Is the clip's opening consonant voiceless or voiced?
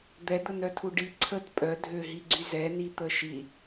voiced